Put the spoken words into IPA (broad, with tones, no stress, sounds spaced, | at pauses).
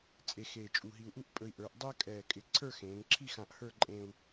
t͡sʼ e˧ x eː˧˩ t͡ʃʼ u˧˩ ɦ i˧ u̯ ʔ u˥ ʔ pʼ ɵ˧ i̯ ʔ ə˞˩˧ ʔ dˤ ɜ˥ kʼ ɛː˧˩ kʼ ɪ˧˩ ǀʰ ə˞˥˧ x ẽː˩˧ ŋ ǁʰ i˥˧ x ã˧ ʔ h ə˞˥˧ ǃʼ ẽ˧ u̯